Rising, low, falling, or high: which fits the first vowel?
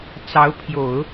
rising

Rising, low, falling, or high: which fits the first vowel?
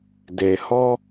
low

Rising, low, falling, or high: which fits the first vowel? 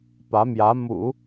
rising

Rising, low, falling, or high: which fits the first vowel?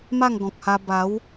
falling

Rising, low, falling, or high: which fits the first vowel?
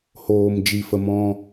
low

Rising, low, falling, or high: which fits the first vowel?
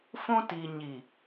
high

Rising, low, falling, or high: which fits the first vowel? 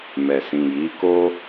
low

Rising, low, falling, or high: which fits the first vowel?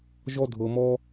high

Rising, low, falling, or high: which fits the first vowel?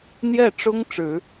falling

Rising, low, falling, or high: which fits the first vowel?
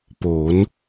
rising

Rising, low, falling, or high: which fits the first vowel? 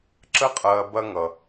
high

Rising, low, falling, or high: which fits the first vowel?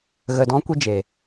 low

